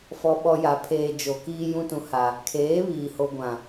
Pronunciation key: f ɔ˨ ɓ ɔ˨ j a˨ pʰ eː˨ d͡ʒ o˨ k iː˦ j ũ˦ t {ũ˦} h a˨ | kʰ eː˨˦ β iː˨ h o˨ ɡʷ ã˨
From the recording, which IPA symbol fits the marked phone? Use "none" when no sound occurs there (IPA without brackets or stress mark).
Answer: ũ˨